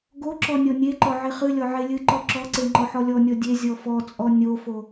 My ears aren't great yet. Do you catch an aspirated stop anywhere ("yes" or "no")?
no